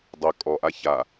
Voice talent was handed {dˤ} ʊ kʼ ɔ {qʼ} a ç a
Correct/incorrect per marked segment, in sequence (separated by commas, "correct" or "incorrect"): correct, incorrect